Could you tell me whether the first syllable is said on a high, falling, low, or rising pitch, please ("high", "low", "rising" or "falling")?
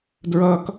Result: high